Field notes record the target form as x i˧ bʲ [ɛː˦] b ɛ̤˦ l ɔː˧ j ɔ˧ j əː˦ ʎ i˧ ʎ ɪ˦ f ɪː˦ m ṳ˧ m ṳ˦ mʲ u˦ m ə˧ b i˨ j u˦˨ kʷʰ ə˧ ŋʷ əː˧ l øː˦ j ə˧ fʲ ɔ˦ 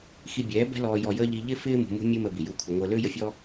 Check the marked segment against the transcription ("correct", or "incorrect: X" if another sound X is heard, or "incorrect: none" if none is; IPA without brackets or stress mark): incorrect: ɛː˨˦